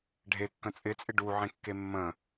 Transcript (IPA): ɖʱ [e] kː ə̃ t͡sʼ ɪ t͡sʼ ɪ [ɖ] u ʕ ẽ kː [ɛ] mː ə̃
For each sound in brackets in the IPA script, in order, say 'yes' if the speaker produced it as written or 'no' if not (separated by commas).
yes, yes, no